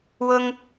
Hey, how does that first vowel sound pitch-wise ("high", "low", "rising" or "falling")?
high